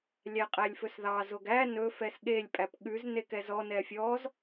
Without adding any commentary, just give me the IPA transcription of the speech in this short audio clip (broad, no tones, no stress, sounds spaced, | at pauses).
lʲ æ qʼ æ lʲ f ɵ s ð ɑ z o ɡ æ n ɵ f ɛ s ɠ e lʲ pʼ æ p ɠ ʉ z n e k ɛ z ɔ n ɛ fʲ ɔ z